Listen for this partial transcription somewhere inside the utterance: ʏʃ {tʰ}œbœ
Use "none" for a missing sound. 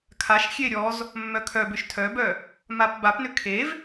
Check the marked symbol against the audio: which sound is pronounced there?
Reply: tʰ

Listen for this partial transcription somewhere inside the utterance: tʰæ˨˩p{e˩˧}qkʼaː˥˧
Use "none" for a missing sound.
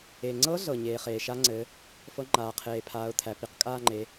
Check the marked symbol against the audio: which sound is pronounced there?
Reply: i˩˧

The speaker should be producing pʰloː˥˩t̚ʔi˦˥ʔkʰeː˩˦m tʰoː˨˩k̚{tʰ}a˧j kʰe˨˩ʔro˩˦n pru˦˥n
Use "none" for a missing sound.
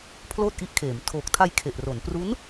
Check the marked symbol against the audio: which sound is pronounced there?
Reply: tʰ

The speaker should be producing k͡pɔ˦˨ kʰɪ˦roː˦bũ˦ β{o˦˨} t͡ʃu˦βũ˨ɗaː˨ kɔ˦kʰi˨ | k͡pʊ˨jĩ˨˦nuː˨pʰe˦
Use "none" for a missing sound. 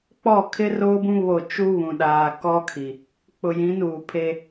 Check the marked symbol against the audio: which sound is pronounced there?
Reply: o˦˨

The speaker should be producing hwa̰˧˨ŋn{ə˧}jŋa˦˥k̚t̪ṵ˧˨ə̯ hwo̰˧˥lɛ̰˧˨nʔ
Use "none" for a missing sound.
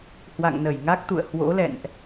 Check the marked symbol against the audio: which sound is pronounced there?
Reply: ə˧˩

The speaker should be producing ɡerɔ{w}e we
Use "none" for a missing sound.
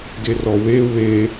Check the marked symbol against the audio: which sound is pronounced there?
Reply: w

